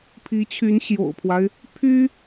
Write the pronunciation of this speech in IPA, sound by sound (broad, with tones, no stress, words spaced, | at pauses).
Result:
pʰi˧˥t͡ɕʰy˧˥n ɕjo̰˨˩ʊ̯pʰwa˦ɪ̯ | pʰy˥